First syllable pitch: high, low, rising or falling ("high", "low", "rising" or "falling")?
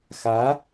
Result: rising